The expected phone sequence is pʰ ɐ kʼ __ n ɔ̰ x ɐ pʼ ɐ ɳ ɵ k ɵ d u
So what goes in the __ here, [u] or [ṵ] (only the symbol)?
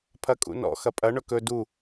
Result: ṵ